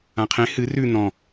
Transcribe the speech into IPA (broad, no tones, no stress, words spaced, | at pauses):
ãqʰẽ hɨ rʉ n̪ɔ̃